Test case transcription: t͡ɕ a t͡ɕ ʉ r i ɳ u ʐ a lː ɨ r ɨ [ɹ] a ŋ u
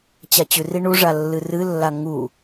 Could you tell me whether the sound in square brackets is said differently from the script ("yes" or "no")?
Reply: yes